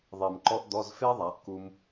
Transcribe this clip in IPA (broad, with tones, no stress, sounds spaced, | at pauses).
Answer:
ðˤ e˨˩ m ǃ ɔ˥ ʔ d̪ ɔ˧˥˧ z f e˥ ðˤ a˩˧ ʔ k u˧ m